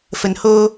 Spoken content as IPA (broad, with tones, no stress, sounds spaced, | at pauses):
f ə˨ n h oː˧